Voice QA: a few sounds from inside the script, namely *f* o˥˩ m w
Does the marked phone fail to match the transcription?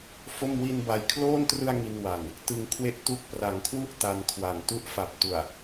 no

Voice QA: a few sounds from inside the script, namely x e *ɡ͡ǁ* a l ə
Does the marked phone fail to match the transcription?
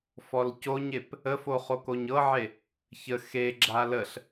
no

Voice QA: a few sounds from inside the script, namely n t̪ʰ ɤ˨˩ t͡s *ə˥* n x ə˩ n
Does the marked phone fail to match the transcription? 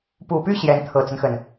yes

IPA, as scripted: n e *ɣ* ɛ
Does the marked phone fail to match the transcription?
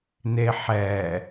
yes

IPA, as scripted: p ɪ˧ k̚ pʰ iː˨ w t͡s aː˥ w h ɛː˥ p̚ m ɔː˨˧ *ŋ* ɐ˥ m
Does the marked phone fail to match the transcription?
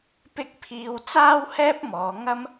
no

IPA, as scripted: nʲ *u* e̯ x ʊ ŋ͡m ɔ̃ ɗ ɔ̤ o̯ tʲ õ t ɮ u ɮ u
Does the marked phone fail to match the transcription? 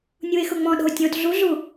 no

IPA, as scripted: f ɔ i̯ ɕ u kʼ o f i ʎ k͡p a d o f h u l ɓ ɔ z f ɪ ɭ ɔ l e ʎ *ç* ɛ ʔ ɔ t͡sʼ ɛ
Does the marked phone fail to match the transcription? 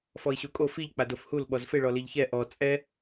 no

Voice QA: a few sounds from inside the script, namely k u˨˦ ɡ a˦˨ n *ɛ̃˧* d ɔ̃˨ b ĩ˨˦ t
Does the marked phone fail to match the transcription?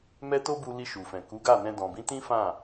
no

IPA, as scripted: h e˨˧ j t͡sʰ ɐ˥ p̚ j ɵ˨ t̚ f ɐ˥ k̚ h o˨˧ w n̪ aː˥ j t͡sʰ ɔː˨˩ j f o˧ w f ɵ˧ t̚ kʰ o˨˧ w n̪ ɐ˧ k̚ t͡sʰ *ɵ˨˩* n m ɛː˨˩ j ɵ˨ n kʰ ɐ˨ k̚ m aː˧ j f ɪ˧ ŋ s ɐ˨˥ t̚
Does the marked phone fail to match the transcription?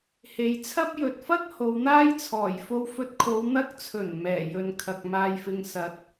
no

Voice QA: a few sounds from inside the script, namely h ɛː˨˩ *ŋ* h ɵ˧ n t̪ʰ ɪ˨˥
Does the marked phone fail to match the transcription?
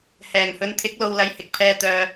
no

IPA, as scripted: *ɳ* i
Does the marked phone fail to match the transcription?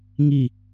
yes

